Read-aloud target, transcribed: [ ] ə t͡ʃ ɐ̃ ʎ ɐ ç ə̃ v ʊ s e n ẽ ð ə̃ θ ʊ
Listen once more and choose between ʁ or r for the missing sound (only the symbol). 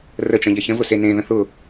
r